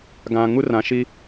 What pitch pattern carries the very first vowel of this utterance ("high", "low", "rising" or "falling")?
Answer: low